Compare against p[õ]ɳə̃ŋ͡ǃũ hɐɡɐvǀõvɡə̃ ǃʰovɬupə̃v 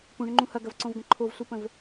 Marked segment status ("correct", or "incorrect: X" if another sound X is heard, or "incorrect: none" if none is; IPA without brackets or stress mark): incorrect: ũ